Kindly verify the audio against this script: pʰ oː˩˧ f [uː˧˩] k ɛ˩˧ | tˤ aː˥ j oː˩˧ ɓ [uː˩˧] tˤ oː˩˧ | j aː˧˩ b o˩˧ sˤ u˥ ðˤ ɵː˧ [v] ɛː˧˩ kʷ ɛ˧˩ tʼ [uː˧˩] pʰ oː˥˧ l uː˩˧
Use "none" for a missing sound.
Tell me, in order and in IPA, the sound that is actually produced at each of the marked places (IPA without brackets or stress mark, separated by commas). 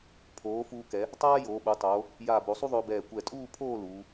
uː˧, u˩˧, b, uː˥˧